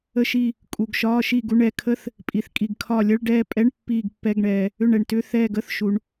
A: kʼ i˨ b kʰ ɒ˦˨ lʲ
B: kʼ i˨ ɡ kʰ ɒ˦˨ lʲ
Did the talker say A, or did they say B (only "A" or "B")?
B